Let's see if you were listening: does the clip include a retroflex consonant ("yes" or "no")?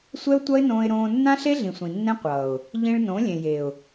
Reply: yes